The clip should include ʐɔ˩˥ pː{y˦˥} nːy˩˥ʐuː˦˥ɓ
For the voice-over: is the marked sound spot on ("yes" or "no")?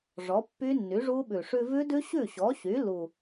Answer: yes